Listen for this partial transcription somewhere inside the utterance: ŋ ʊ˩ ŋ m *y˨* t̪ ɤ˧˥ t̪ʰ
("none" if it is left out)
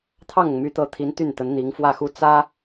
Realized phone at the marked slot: y˧˥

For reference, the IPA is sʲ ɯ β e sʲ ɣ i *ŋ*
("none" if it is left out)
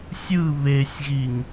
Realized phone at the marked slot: ŋ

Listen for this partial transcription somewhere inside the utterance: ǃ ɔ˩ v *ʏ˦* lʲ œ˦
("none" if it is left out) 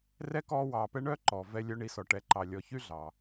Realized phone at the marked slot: ɛ˦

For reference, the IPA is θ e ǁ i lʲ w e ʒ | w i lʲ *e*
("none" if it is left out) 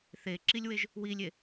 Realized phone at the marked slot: e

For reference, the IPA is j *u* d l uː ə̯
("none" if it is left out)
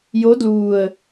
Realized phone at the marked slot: o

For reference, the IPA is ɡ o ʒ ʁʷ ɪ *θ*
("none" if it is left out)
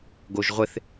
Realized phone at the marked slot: θ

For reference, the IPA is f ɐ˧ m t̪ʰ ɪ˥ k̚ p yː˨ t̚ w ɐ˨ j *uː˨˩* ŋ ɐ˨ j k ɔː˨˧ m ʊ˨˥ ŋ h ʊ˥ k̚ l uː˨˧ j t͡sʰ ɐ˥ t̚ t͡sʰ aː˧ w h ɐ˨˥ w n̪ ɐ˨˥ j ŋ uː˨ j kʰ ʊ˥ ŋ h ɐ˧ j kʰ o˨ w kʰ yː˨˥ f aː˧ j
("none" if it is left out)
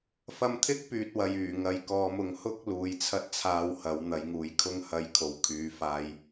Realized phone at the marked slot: yː˨˩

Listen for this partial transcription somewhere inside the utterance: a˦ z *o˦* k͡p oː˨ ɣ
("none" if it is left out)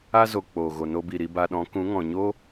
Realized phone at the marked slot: o˨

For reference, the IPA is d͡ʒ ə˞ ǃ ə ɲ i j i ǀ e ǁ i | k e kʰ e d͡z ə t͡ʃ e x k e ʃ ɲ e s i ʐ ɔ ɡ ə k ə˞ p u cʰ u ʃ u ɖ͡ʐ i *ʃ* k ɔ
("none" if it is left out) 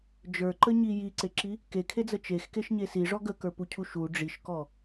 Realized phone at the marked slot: ʃ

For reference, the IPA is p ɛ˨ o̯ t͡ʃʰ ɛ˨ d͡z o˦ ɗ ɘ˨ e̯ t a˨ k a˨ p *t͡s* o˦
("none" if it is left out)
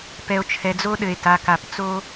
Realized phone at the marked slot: t͡s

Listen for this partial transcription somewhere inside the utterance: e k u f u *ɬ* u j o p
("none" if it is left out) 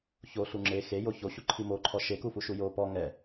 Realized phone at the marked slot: ʃ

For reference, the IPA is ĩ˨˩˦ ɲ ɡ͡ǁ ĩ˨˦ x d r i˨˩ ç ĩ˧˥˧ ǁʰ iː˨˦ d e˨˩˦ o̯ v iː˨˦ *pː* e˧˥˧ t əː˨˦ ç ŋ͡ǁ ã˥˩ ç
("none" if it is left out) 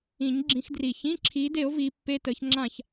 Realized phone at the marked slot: pː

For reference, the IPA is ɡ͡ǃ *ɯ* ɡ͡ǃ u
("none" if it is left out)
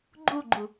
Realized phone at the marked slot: u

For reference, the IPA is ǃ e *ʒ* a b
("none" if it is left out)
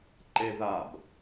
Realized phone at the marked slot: ð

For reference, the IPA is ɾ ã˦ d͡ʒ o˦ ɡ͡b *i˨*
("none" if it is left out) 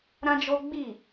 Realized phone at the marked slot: i˦˨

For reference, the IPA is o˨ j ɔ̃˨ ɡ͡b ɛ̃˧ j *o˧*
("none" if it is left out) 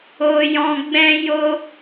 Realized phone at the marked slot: o˧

